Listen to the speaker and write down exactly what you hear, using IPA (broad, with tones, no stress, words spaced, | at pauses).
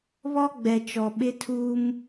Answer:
βɔ˦ɡ͡bɛ˨t͡ʃɔ˨ ɓɪ˦tʰuː˦m